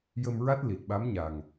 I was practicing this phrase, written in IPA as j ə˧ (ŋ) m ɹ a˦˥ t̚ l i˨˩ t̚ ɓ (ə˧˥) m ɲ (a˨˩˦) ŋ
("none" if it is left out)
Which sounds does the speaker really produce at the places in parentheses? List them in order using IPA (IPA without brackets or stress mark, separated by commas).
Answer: none, a˧˥, a˨˩